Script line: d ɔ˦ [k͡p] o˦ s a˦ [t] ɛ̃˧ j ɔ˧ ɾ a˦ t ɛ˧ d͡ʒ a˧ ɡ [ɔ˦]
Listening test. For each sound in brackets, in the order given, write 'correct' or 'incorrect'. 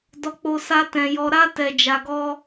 correct, correct, correct

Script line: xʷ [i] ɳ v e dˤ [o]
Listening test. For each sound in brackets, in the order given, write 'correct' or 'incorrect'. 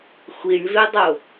correct, correct

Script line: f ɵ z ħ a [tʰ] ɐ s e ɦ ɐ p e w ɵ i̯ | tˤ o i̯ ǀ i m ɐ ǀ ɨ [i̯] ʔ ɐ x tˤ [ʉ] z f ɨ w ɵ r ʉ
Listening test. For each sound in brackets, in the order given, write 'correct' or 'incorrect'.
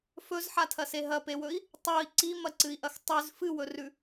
correct, correct, correct

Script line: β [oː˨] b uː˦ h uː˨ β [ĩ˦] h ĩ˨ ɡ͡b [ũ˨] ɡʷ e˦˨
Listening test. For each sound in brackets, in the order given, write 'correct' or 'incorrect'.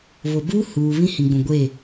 incorrect, correct, correct

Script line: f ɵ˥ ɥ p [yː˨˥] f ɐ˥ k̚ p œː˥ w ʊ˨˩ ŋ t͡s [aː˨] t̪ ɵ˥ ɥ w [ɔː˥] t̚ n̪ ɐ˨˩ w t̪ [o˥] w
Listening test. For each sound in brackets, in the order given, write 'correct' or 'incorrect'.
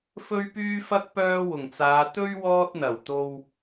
incorrect, incorrect, correct, incorrect

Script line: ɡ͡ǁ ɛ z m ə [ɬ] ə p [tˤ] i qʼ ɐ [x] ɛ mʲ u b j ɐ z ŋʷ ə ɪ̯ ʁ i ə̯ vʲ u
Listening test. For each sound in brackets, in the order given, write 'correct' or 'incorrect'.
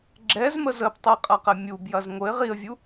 incorrect, correct, incorrect

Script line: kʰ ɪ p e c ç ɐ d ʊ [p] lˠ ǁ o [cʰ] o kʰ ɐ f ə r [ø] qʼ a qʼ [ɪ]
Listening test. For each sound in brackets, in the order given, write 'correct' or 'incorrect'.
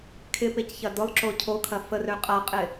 incorrect, correct, correct, correct

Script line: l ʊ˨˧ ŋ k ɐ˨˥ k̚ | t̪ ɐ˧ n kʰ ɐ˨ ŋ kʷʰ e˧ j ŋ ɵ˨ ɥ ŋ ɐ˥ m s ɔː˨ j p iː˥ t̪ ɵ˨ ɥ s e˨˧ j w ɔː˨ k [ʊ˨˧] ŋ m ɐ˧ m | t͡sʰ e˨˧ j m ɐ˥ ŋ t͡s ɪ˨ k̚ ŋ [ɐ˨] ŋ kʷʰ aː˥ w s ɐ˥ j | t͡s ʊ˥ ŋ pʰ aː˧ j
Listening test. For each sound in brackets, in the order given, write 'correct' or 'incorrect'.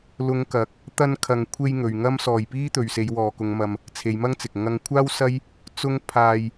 correct, incorrect

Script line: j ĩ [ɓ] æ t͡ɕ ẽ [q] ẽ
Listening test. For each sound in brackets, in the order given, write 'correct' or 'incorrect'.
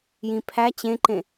incorrect, incorrect

